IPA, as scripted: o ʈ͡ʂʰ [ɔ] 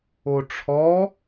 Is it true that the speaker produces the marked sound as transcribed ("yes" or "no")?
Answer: yes